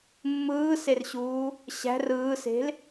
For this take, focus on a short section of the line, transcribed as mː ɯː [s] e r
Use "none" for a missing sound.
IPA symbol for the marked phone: s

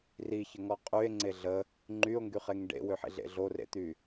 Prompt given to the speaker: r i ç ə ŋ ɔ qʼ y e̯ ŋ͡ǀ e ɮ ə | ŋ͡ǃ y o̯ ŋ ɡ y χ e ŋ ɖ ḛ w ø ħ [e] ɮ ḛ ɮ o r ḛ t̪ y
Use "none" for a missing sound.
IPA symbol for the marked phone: ḛ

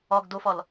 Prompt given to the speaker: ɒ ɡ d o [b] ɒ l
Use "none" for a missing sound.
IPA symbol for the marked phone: f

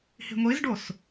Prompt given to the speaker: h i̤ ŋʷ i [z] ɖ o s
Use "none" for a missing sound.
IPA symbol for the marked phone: z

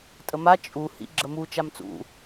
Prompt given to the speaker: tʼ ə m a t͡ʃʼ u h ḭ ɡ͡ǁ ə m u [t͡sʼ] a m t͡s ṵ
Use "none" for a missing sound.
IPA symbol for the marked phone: t͡ʃ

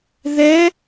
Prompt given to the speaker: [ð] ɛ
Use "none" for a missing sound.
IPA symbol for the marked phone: ð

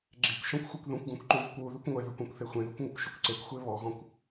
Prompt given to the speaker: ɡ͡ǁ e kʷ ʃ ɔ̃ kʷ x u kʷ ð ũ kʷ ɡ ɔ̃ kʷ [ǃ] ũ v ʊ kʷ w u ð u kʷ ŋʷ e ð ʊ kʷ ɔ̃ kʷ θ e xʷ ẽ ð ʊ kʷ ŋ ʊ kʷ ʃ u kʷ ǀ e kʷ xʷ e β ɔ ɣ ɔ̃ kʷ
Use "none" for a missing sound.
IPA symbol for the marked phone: ǃ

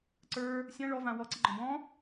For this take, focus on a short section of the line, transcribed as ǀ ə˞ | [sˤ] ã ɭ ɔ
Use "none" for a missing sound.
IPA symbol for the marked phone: sʲ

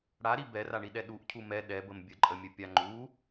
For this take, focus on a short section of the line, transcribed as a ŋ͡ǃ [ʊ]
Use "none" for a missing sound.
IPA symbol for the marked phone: u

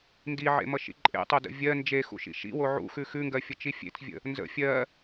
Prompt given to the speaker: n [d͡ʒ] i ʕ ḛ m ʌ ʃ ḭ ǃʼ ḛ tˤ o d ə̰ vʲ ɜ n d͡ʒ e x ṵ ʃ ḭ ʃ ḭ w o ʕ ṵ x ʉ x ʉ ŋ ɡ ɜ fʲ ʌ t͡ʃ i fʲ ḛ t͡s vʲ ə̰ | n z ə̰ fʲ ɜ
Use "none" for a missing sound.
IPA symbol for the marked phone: d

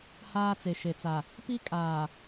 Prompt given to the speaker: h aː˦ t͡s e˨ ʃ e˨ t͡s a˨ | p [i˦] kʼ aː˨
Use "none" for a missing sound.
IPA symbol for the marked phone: i˦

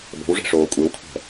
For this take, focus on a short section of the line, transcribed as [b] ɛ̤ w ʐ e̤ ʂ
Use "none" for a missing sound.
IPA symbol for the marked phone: b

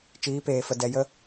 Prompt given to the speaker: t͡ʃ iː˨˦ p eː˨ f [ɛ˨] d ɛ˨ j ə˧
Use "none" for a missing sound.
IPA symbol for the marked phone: ə˨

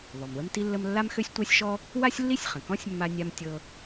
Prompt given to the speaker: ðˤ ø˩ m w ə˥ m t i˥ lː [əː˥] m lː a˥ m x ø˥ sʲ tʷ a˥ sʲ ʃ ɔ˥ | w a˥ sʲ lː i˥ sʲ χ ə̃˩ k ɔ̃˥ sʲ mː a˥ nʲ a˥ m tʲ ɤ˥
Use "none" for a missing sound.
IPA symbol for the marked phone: ə˥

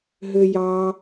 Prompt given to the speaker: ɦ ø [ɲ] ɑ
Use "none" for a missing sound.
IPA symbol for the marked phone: j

